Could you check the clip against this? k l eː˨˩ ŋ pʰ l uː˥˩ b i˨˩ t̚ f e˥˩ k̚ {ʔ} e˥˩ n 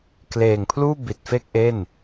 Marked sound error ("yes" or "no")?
no